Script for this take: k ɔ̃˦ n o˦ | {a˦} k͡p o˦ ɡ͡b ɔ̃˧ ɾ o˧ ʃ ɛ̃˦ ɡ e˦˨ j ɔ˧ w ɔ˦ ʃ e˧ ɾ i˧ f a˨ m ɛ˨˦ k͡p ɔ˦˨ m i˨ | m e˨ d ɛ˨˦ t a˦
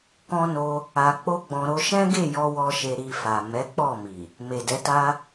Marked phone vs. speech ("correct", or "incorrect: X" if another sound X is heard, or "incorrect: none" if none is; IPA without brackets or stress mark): incorrect: a˧